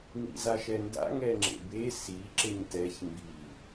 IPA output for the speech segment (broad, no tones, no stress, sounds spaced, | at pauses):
ŋ ḭ z a ʃ ɛ n d a̰ ŋ ɛ ŋ͡ǁ ḛ b e s i ǁ e ɲ t ɛ ç m b i